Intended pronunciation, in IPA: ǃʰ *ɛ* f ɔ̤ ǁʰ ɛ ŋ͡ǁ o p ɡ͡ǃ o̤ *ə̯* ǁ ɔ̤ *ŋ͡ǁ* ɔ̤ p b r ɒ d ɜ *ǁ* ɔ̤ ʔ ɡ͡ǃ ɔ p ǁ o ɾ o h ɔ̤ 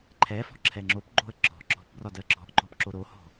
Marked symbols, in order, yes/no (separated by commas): yes, yes, no, yes